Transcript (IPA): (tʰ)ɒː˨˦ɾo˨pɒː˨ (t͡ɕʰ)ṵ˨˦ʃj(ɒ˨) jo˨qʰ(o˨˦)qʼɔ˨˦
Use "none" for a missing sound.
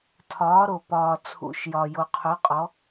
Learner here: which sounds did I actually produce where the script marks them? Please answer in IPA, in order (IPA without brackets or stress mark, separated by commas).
tʰ, t͡sʰ, ɒ˨, o˨˦